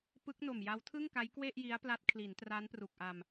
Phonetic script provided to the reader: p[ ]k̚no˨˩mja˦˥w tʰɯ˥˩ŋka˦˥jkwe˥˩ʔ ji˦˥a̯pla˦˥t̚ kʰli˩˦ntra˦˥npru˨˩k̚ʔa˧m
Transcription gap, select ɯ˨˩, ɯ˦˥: ɯ˦˥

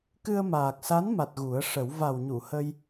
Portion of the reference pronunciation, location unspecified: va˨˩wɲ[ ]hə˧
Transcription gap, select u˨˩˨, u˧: u˨˩˨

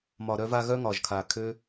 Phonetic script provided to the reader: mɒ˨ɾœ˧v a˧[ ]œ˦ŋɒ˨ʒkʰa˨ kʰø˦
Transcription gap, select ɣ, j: ɣ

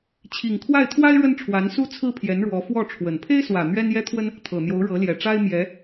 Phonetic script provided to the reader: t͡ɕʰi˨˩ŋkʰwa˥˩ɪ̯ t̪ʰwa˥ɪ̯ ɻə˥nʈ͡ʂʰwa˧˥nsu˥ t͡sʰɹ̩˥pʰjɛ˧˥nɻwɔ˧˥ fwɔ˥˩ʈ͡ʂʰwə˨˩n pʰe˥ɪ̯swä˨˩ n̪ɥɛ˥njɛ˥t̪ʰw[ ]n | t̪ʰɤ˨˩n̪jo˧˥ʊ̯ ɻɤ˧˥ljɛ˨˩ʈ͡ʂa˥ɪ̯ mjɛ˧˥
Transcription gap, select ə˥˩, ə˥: ə˥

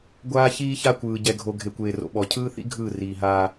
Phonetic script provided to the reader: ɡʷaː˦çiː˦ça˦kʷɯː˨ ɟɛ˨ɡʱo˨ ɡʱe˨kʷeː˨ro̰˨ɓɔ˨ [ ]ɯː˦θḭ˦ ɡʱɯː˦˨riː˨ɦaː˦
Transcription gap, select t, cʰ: cʰ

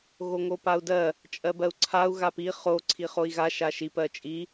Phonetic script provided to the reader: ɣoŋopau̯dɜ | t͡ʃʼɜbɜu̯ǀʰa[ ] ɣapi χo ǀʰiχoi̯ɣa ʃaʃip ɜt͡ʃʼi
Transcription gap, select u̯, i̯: u̯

